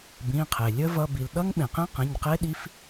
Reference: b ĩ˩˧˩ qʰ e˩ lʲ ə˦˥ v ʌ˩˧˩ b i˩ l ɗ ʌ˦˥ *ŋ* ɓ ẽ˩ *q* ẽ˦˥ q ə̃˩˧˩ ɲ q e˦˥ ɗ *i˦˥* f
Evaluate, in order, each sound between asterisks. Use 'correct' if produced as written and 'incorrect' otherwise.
correct, correct, correct

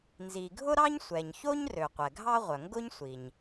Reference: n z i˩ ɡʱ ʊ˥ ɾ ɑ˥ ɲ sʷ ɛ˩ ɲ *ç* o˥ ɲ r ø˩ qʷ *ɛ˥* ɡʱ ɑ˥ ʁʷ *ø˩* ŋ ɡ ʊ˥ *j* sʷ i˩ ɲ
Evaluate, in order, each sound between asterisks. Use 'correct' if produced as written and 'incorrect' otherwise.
correct, incorrect: ɛ˩, incorrect: œ˩, incorrect: ɲ

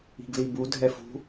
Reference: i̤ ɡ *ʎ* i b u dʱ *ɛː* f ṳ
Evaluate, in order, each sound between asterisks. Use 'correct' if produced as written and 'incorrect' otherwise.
incorrect: l, incorrect: ɛ

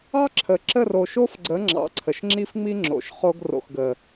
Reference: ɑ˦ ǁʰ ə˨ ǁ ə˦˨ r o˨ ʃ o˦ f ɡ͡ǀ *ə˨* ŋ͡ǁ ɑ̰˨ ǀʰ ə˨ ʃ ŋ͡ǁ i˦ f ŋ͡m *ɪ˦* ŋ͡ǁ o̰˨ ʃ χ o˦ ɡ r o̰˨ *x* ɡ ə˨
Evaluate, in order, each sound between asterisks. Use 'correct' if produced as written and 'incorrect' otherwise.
incorrect: ə˨˦, incorrect: i˦, correct

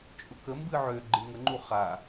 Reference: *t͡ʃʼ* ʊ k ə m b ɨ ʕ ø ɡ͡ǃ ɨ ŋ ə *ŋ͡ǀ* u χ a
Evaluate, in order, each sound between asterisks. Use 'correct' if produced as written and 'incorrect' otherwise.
correct, incorrect: ŋ͡ǃ

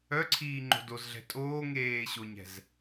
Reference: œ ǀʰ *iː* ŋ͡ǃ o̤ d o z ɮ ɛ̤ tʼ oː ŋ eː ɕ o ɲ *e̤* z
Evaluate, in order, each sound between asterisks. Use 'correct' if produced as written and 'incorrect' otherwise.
correct, incorrect: ɛ̤

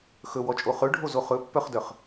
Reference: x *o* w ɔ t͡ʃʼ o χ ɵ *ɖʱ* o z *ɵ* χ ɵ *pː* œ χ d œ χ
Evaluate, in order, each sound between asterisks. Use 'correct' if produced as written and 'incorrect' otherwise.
incorrect: ɵ, correct, incorrect: o, correct

